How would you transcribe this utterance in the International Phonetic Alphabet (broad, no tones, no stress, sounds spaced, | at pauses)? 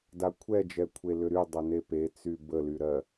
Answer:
d a kʷʰ ɛ d͡ʒ ɛ kʷʰ e l ʏ ɾ y dˤ ɜ n e p e t͡s y b ə l y ɾ ɜ